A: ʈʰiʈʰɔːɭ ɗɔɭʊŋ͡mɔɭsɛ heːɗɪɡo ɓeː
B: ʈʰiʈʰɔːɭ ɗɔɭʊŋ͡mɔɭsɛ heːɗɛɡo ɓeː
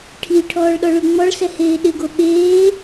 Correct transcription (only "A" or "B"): A